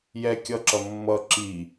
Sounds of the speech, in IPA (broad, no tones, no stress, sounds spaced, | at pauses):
j ɛ kʲ ʌ ǁ ʌ mː ʌ ǁ i